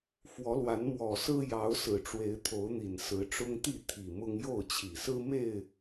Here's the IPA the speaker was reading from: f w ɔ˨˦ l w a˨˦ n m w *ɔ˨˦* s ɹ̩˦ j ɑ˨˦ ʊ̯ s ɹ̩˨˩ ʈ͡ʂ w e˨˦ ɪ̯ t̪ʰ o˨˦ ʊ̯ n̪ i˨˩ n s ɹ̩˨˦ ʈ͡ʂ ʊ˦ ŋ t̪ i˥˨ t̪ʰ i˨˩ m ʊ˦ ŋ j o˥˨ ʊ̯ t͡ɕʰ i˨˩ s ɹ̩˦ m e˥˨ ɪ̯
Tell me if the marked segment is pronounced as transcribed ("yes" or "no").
no